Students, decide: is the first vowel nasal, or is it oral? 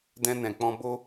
nasal